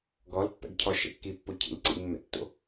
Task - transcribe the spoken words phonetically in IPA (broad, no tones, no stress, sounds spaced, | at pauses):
ɡ ɔ l pː ɛ̰ ɡ cʰ ɔ ʃ ɛ̰ kː i pː o cʰ ḭ l ǀ ḭ mː ɛ̰ tː o̰